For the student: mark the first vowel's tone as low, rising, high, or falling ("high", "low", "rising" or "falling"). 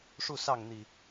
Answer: falling